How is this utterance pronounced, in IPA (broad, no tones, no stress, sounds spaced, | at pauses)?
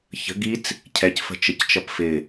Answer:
ç ə̤ ɡ i t͡s | cʰ ɛ c f ə̤ t͡ʃ ə c t͡ʃ ʌ p f ɪ